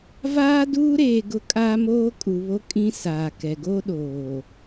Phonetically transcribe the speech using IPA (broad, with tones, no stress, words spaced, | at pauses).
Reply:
vaː˦duː˦ɾeː˨ ɡʊ˦ kʼaː˦moː˦kʼu˨βo˦ kʼĩ˦saː˨kɛ˨ ɡo˦ɗoː˨